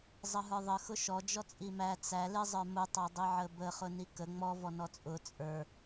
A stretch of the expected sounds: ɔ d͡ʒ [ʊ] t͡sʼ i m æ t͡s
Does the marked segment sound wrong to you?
yes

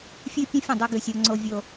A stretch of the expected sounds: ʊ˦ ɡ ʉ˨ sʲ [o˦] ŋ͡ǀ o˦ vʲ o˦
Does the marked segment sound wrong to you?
no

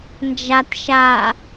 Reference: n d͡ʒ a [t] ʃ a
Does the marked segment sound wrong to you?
no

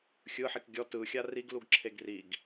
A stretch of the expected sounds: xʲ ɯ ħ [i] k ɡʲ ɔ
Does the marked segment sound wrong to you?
no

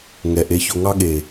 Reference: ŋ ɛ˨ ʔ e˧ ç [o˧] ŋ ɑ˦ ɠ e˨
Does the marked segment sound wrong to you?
no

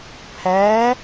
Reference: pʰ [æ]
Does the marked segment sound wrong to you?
no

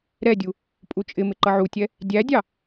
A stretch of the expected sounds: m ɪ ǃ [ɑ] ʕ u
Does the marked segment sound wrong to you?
yes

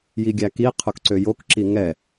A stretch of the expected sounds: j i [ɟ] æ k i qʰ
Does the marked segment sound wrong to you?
yes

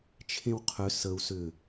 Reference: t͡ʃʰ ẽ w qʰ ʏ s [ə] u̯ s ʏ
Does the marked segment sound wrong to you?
no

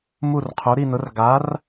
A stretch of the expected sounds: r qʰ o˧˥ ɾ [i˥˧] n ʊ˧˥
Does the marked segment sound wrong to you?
no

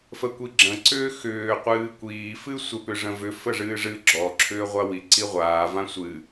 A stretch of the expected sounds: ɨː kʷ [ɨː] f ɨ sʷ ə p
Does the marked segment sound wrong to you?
yes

